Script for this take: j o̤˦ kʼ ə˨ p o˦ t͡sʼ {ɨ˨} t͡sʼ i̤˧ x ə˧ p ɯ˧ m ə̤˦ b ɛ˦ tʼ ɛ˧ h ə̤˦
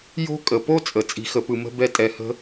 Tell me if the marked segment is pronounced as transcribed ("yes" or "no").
no